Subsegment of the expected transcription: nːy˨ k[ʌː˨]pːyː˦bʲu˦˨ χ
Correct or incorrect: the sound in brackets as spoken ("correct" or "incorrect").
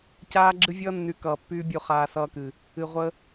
correct